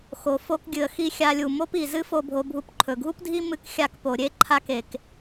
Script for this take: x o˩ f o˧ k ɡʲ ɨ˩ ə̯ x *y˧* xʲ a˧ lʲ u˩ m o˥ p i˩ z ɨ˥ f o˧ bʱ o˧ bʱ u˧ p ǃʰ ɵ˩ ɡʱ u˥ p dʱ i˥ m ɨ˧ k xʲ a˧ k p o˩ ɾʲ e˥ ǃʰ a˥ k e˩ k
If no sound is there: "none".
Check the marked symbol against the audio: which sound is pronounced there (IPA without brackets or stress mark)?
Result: i˧